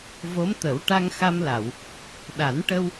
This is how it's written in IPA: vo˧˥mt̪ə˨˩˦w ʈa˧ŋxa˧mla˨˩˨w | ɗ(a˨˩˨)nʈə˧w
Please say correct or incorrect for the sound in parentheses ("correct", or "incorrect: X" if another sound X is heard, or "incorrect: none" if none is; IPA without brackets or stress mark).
incorrect: a˨˩˦